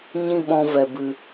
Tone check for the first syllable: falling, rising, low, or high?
high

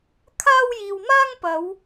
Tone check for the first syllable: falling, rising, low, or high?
high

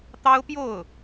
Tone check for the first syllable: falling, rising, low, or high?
high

